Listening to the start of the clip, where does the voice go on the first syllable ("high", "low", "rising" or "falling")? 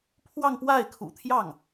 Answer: falling